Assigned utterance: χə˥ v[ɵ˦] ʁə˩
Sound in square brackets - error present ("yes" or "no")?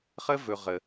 yes